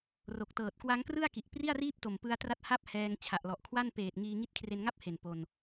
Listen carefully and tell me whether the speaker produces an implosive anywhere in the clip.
no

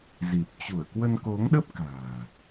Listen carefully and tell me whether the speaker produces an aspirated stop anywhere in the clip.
no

